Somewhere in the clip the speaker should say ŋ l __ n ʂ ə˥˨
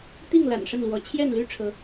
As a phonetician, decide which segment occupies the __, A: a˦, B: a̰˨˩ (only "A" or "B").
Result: B